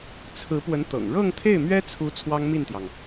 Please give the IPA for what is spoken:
t͡sʰ ɹ̩˧˥ p w ə˧˥ n t̪ ɤ̰˨˩ ŋ ɻ ɤ˥˧ ŋ t̪ʰ e˥˩ ɪ̯ m ɥ ɛ˥ t͡sʰ u˧˥ t͡sʰ w ɑ˥ ŋ m i˥˩ n t̪ j ɑ˩ ŋ

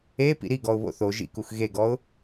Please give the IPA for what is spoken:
e p ḭ ɾ i ɡ ɔ ʊ̯ β o̰ θ o ʒ ḭ k u x ɣ e ɡ ɔ ʊ̯

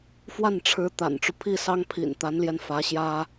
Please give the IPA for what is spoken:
f w a˥˩ n ʈ͡ʂʰ ɻ̩˧˥ t̪ a̰˨˩ n ʈ͡ʂ u˦ pʰ i˥˩ s ɑ˥ ŋ pʰ ḭ˨˩ n t̪ a˧˥ n l j ɛ˧ n f ä˧˥ ɕ j ä˥

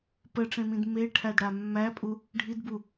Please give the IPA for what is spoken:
p ə ʈ͡ʂ ẽ m ĩ d m e ʈʰ æ d ɽ a mː æ pʼ u | ɖʱ i d b u

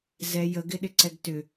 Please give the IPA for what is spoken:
z ɛ j ə ɡ ɪ ɗ ɪ ǀ ɛ ɡ t ʏ

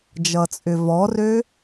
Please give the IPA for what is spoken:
d͡ʒ ʌ t͡sʼ ʏ v ɔ r ø

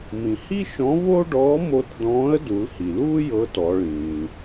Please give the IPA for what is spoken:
m ĩ˩ h i˥ ʃ ɔ̃˧˥ v o˥ ɖ ɔː˧˥ m o˧ t d ɔ̃ː˧˥ ə̯ d u˩˧ l h i˩ l uː˥ j ɤ˧˥ t ɔ˩˧ ɭ ĩː˩

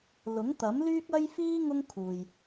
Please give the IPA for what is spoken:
l ʊ˨˥ ŋ t̪ ɐ˨˥ m l yː˥ k̚ ɐ˥ j f iː˥ ŋ ʊ˥ ŋ kʰ uː˨ j

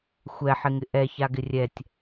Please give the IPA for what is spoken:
xʷ ɛ ħ ɪ ŋ ɪ ʔ ɛ ç a ɡ ɪ rʲ ɛ tʲ

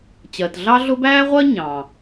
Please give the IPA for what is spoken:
t͡ɕ ɜ˩ t ɮ ɑ˥ ɮ ʊ˥ b æː˥ ʁʷ ɜ˥ ɲ ɑ̃˩

